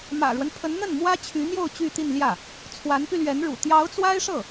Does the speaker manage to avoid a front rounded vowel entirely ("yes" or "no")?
no